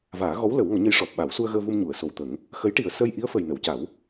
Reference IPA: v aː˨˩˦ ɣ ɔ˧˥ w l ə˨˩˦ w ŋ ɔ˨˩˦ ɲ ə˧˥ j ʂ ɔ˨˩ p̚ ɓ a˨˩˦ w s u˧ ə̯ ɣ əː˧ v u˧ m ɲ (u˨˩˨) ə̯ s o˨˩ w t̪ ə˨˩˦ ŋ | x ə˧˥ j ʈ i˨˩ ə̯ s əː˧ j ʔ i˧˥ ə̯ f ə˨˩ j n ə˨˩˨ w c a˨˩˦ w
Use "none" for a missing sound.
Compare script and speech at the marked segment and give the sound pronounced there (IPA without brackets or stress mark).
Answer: u˨˩˨